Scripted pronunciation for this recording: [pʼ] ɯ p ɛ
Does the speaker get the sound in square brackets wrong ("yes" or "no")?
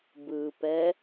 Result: yes